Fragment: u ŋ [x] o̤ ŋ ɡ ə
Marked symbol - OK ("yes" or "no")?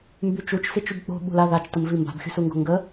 no